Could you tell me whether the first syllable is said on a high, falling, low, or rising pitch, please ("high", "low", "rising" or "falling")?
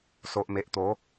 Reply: low